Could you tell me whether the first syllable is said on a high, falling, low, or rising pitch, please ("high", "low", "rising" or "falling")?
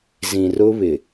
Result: low